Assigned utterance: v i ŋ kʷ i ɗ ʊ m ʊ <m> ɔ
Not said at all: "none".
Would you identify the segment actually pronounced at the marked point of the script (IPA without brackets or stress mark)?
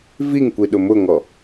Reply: ŋ